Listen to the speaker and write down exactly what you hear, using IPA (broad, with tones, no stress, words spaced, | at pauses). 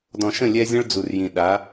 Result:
dɔ̃˨ʃə̃˦˨ lʲɛ˦zʲə̃˦ɭd͡zu˨rjĩ˨ ɗa˨˦